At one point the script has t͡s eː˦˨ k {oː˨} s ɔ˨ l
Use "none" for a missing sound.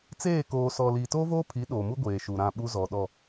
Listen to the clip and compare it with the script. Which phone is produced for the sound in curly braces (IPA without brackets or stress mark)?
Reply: oː˨